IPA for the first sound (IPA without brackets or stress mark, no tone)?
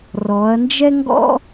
r